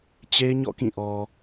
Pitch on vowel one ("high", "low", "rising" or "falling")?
high